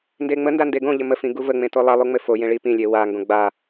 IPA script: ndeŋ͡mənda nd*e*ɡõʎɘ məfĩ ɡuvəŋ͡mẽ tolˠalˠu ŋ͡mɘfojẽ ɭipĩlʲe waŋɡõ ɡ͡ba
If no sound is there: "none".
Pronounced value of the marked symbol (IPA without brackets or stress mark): e